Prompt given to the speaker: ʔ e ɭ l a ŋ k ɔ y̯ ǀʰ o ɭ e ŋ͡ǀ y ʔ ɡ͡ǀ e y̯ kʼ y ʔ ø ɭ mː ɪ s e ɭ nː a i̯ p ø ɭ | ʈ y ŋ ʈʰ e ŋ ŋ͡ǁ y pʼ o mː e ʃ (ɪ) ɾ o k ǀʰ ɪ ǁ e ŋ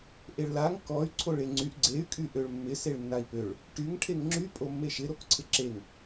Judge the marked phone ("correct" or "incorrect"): correct